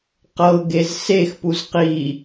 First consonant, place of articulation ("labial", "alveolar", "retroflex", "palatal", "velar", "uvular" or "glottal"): uvular